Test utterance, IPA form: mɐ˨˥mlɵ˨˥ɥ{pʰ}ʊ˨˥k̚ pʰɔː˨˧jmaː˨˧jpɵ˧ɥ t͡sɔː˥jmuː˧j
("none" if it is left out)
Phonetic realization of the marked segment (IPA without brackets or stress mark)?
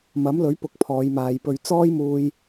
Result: p